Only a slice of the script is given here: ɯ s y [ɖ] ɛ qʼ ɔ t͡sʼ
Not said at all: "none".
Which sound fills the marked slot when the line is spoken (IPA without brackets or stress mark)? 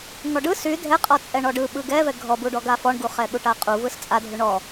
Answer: dʱ